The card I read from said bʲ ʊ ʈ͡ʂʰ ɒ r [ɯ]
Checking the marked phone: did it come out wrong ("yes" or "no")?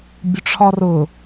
yes